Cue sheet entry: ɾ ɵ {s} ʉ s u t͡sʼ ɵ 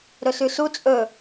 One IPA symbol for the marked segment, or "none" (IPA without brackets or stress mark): s